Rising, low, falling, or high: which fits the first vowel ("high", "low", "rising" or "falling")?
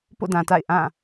falling